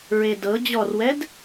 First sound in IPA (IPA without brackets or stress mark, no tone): ɹ